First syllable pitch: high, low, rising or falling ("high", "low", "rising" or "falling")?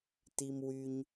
low